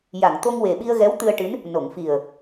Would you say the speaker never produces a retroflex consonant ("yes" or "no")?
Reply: no